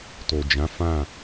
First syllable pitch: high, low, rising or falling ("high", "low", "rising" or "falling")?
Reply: low